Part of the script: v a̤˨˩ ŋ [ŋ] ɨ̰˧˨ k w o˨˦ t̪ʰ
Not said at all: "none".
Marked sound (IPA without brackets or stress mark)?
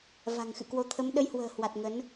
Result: x